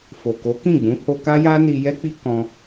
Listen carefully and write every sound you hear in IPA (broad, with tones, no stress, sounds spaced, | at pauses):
f o˨ k o˨˦ k ĩ˦˨ ɡ͡b ũ˨˦ h o˧ k a˦ j a˦ n i˧ j ɛ˦ k͡p i˦ k ɔ̃˦